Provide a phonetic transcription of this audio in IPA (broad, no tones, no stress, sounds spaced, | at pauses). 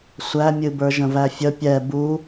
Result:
sʷ æ mʲ ɨ b ə˞ ʒ ə̃ v æ fʲ ə pʲ ɛ b u